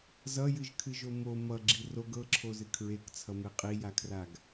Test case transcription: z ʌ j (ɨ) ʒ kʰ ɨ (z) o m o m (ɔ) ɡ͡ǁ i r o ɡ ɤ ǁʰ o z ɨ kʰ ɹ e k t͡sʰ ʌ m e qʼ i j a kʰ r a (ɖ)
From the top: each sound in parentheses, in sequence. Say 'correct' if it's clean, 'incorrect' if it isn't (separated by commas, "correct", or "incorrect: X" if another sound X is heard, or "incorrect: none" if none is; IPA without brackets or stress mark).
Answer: correct, incorrect: ʒ, incorrect: ʌ, incorrect: ɡ